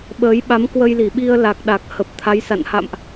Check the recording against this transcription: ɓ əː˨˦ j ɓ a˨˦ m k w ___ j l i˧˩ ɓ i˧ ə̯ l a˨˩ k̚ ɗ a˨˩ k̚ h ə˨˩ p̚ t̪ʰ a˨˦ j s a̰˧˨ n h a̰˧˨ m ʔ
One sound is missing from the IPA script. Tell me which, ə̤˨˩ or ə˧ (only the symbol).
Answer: ə˧